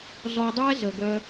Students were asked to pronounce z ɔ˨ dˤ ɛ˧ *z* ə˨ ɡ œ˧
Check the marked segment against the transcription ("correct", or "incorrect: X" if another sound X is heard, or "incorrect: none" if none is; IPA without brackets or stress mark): correct